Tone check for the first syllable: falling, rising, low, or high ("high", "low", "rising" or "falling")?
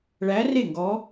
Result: rising